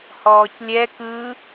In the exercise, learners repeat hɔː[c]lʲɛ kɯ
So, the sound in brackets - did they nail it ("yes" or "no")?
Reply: yes